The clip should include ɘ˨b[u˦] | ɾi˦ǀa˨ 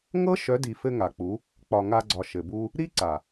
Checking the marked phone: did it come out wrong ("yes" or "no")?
no